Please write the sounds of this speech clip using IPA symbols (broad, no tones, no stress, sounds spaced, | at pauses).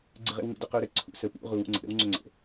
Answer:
ɡ͡ǀ ə ʁ ḛ w ŋ ṵ d ʏ q ʏ u̯ ɾ ə ǀʰ ṵ s ə p ṵ ʁ u w ṵ ŋ͡ǀ ə̰ ɾ ə̰ w ŋ͡ǀ ʏ ŋ͡ǀ ə̰